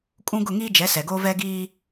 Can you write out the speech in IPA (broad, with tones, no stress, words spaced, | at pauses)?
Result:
kʼũ˦ ɡʊ˦˨ŋiː˦d͡ʒɛ˨˦ sɛ˨ɡo˦ vɛ˦ɡiː˦